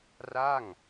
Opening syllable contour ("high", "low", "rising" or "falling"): falling